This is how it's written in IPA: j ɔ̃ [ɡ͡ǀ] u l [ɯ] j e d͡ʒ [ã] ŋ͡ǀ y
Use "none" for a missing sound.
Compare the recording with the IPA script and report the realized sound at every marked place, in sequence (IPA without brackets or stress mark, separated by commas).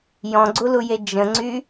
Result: ɡ͡ǀ, u, ə̃